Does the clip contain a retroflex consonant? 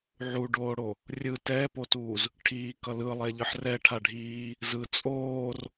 yes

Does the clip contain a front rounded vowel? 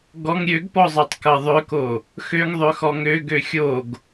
yes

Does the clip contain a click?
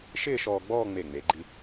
yes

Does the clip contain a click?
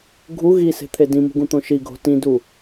no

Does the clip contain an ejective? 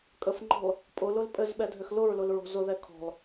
yes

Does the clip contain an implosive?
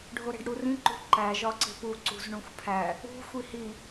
no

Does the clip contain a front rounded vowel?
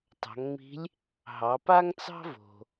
no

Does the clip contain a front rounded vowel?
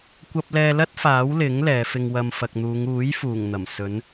no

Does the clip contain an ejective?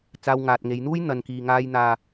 no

